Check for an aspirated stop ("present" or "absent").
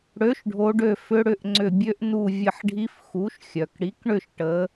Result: absent